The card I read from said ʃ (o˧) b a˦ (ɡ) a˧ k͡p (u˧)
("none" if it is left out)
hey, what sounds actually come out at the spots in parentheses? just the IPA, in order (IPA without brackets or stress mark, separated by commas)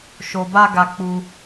o˧, ɡ, u˧